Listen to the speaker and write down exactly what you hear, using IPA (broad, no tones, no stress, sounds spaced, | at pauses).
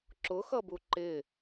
ǁ ʊ x ʌ b u ǃ ɪ